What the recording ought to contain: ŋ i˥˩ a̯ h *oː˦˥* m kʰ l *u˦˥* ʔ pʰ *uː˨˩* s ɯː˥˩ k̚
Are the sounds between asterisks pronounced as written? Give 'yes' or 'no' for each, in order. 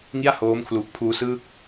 yes, no, no

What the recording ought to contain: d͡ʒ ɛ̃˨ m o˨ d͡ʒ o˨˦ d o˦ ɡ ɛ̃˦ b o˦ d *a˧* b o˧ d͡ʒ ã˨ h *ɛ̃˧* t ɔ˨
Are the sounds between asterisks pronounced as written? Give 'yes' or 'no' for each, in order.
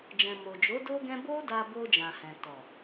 yes, no

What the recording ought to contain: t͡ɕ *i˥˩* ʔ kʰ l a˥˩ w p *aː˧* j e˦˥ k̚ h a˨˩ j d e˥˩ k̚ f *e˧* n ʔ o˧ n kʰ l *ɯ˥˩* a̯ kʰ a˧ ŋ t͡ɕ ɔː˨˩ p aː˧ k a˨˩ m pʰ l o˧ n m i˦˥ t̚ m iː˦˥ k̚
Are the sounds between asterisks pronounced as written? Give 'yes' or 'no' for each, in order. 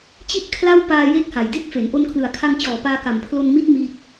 yes, yes, no, no

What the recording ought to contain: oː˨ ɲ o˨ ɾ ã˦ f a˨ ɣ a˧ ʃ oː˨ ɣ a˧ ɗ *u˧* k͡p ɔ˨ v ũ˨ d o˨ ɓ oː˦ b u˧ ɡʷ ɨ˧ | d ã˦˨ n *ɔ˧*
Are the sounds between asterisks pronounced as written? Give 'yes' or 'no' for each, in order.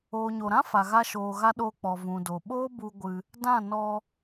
no, yes

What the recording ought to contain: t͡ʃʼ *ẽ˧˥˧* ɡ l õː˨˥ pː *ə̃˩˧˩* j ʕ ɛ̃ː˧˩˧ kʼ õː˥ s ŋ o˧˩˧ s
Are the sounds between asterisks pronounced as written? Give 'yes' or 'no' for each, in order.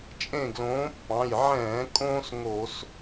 no, no

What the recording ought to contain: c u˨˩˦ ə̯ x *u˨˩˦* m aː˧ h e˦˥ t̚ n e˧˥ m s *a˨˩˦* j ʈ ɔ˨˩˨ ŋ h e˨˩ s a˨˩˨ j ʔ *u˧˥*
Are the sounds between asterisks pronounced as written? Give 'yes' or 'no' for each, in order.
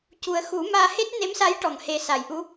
yes, no, yes

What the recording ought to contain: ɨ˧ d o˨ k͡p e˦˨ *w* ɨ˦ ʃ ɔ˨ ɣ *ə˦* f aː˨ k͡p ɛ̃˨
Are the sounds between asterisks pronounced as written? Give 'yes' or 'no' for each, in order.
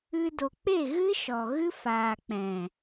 no, no

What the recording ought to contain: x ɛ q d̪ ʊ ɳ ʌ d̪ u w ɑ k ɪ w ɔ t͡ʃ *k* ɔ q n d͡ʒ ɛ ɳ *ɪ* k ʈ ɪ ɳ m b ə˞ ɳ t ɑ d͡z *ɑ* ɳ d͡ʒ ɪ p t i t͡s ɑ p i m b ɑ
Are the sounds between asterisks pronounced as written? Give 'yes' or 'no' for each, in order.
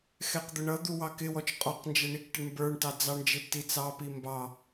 no, no, yes

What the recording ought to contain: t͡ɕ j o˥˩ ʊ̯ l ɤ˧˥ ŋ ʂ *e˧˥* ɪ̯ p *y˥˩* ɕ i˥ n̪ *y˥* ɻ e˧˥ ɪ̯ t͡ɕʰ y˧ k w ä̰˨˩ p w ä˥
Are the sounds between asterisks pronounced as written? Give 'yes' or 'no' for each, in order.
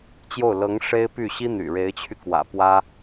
no, yes, no

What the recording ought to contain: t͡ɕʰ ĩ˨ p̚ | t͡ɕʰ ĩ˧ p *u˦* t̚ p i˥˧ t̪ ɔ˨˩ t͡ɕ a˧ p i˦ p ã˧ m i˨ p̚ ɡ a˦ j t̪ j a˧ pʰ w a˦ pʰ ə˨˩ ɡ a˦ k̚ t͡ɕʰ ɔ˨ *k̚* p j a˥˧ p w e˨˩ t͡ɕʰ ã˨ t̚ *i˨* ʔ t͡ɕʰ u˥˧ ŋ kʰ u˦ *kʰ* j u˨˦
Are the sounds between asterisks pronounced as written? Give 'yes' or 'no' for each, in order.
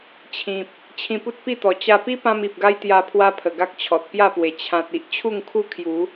yes, no, yes, yes

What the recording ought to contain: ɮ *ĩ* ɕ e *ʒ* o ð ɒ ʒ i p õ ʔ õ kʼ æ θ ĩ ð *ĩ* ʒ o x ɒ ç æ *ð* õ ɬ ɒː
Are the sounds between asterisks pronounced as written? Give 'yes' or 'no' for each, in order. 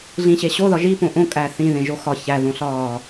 yes, no, no, yes

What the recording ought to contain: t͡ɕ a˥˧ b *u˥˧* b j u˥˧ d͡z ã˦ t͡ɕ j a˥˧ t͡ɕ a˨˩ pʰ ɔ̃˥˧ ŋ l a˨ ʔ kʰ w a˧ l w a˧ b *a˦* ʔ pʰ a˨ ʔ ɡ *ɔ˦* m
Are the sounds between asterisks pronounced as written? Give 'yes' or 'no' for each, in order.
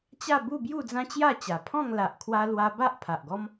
yes, yes, yes

